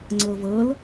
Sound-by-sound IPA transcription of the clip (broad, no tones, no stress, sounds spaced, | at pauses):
ŋ͡ǀ ɤ v ɤ l